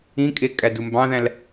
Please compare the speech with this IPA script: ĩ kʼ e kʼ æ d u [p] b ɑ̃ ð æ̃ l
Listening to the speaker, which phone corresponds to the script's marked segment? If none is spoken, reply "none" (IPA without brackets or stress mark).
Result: m